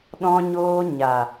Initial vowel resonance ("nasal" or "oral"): nasal